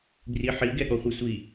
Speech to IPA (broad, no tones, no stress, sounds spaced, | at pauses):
b r i ħ i ɡ ɛ ɠ ɔ χʷ i sʷ i